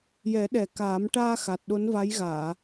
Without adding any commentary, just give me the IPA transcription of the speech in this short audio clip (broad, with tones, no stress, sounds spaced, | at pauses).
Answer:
j ɛ˨˩˦ ɗ ɛ˨˩ k aː˨˩˦ m ʈ aː˧ x a˨˩ t̚ ɗ o˧˥ n v a˧˥ j ɣ aː˨˩˨